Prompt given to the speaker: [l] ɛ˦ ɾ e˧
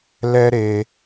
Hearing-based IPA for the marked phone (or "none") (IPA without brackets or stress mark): l